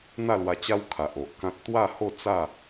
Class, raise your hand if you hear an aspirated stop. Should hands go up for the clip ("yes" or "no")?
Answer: yes